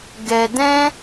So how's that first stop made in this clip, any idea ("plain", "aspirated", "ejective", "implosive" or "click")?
plain